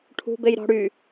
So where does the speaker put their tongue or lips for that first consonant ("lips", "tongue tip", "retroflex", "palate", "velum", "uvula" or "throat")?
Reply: retroflex